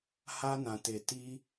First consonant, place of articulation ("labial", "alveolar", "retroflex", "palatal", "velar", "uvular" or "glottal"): glottal